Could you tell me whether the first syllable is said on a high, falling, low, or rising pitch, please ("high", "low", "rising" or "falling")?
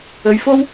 low